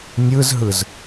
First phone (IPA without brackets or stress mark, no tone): nʲ